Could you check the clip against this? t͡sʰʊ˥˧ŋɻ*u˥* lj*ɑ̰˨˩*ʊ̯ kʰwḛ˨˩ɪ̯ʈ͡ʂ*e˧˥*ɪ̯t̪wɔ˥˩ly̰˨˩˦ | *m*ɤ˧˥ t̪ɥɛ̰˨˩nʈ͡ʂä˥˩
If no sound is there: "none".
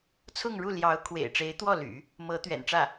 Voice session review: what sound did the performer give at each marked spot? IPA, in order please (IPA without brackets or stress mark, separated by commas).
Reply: u˥˩, ɑ˧˥, e˧˥, m